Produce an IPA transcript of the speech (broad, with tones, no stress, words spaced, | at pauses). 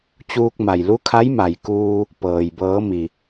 t͡ɕuː˧k̚ma˩jlu˧˥kʰa˧˥j ma˩jkuː˧ | pɤː˩j bɤː˩˧ mi˩